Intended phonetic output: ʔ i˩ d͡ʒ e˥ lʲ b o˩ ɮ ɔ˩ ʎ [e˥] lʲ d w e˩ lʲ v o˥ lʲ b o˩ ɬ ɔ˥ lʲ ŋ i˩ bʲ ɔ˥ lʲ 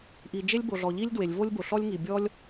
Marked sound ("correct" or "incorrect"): incorrect